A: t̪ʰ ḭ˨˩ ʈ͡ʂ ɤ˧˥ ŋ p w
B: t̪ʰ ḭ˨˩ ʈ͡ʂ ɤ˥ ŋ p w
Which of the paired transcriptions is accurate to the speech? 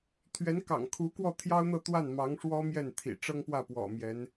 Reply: B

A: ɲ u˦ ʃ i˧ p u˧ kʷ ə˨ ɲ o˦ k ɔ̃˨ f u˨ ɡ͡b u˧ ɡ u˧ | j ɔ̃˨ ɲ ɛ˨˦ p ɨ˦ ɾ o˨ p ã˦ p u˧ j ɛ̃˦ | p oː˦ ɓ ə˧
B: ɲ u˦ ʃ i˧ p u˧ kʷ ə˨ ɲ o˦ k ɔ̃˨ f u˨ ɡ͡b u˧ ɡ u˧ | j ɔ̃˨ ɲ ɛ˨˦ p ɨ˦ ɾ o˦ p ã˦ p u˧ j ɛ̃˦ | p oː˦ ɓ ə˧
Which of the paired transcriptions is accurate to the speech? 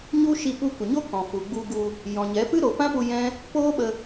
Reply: A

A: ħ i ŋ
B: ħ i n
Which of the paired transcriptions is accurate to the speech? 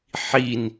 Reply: B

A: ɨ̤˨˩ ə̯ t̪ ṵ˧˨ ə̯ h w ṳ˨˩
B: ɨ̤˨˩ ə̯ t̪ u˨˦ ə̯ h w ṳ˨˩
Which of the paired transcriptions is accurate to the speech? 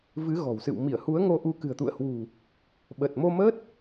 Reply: A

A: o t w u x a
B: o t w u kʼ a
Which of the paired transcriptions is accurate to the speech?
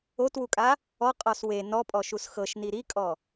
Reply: B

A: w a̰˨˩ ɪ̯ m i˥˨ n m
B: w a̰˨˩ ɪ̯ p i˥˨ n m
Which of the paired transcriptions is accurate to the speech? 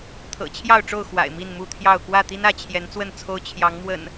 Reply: A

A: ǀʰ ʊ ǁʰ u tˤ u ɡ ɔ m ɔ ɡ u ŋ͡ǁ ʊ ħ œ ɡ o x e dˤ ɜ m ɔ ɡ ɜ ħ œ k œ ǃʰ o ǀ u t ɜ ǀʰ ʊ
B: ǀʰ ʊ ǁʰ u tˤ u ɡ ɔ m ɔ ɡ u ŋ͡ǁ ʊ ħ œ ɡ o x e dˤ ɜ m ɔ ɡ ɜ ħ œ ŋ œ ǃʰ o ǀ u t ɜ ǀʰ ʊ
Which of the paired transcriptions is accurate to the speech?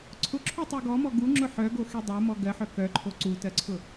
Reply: A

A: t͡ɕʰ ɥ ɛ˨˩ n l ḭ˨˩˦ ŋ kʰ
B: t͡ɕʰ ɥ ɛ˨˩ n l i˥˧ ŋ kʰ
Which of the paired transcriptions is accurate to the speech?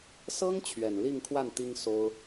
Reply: B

